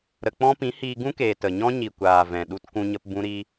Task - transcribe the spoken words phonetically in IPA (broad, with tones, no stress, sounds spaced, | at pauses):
ɾ ə˨ k͡p ɔ̃˧ p ĩ˨˦ h iː˧ ɡ ũ˦ k eː˨ t ə˨ ɲ ɔ̃˦ ɲ i˨ kʷ aː˨ v ɛ̃˨ ɗ u˧ t k ũ˧ ɲ ə˧ p b ũ˧ ɾ i˧